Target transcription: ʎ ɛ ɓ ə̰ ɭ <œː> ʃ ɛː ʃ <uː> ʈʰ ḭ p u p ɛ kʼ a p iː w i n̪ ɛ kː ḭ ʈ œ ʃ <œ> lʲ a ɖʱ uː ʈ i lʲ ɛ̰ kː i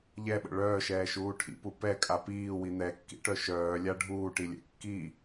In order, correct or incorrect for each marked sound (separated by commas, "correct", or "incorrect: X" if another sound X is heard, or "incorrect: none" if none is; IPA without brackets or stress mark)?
correct, correct, incorrect: œː